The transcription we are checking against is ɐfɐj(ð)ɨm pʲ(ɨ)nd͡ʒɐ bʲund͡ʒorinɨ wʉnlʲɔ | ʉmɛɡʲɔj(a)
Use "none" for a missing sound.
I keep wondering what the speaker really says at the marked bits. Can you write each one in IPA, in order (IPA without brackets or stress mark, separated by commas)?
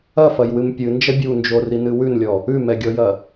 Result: w, ɨ, ɐ